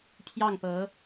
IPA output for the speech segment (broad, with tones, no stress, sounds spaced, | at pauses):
pʰ j ɑ˥˩ ŋ p ɤ˧˥